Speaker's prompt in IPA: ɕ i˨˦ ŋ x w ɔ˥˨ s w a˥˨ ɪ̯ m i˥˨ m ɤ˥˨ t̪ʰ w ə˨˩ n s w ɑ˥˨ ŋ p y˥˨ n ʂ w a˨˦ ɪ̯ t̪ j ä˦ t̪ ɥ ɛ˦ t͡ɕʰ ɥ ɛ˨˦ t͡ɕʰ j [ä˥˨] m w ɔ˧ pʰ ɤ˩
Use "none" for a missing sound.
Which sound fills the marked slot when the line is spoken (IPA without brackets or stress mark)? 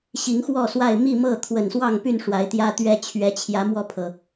ä˨˦